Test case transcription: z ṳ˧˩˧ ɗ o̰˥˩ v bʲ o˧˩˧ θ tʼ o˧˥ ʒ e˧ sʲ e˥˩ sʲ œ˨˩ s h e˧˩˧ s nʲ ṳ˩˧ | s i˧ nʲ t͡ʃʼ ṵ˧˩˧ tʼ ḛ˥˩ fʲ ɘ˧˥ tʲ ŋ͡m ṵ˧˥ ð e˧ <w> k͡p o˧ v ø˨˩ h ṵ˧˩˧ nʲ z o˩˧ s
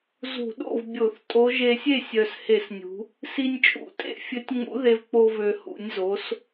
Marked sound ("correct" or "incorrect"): incorrect